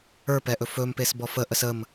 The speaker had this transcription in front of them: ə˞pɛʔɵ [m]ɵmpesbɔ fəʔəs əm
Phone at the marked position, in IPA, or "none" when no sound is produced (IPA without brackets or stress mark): f